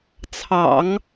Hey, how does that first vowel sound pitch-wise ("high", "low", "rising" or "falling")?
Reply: low